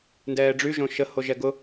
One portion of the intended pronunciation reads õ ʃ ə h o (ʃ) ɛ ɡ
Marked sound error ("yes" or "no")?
yes